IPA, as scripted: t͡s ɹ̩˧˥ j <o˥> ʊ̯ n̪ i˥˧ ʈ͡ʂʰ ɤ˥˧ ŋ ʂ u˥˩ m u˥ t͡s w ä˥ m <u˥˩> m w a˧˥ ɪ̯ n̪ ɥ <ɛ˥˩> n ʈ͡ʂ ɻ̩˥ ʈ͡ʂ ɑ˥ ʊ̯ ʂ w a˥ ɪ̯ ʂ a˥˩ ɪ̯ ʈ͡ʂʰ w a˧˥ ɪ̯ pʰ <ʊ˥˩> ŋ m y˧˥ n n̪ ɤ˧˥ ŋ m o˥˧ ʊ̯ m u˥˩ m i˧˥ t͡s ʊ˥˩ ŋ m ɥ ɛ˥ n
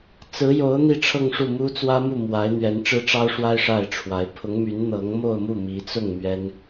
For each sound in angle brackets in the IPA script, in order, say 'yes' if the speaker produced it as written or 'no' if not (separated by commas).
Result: no, yes, no, no